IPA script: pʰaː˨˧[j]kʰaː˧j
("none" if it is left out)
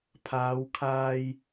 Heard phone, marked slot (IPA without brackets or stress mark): w